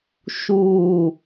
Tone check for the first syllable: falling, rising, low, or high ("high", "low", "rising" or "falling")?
falling